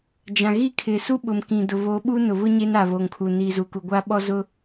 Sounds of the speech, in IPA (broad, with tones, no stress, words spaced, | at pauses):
d͡ʒã˨ɣi˦˨kʰɪ˨ su˦ɓʊ˨mkĩ˨ dʊ˨βo˨˦ɓu˦ nʊ˨βʊ˦ ɲe˦na˨ βo˨ŋkʰu˨niː˨ zu˨ku˨ɡʷa˦ ɓɔ˦zʊ˦